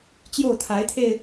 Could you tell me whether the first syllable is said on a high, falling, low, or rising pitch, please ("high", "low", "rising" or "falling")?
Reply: falling